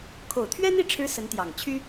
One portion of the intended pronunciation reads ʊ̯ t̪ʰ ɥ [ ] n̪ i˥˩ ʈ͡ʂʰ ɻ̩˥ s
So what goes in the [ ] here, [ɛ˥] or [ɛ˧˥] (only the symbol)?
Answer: ɛ˥